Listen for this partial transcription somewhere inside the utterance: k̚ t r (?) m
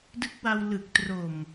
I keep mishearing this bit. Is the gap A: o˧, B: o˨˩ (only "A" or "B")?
B